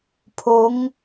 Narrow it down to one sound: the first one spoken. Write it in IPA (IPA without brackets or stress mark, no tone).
pʰ